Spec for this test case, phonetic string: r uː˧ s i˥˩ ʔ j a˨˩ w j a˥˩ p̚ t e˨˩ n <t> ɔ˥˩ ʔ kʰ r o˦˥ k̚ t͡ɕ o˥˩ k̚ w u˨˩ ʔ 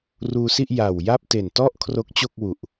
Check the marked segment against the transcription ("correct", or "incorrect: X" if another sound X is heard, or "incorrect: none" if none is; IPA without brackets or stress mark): correct